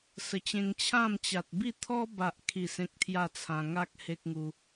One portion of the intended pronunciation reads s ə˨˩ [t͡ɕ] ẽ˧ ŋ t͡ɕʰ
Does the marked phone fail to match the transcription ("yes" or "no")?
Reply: no